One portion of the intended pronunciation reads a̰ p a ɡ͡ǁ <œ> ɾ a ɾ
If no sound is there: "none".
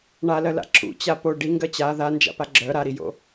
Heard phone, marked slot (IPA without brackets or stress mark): œ